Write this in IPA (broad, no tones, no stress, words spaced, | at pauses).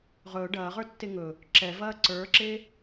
ʁɵː ɖɐːʁə˞tːe ŋɵ | ǁɛvɐː ǀə˞ǁe